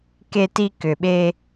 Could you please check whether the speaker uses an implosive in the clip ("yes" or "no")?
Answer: yes